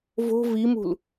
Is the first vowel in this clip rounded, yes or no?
yes